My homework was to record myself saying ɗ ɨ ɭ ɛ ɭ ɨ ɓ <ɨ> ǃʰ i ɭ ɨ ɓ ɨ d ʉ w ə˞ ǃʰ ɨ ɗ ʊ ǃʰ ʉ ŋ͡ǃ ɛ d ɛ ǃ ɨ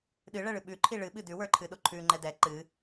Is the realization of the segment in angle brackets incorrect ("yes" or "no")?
yes